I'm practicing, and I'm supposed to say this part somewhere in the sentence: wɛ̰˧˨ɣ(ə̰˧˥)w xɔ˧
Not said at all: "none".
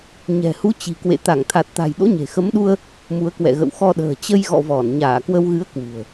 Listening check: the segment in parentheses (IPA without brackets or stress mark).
ə̰˧˨